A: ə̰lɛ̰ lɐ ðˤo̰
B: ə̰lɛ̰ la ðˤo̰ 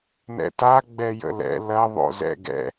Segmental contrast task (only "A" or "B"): A